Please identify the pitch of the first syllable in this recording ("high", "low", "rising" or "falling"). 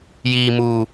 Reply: low